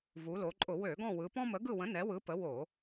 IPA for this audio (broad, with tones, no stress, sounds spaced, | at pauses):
v u˩˧ l o˩˧ ǃʼ ʊ˧˩˧ w ø˧˩˧ ɡ ɔ̃˦˨ w ɯ˩˧ p ɔ̃˦ m ə˨˥ ɡ ɯ˦˨ w ə̃˨˥ n ɛ˨˥ w ɯ˨˥ p ə˨˥ w o˧˩˧